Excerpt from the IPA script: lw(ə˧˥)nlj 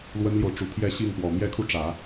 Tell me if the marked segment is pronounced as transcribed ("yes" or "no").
no